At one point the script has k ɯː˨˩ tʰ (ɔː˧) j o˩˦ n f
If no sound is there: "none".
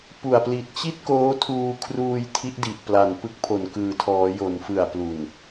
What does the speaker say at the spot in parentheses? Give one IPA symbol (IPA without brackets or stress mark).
ɔː˩˦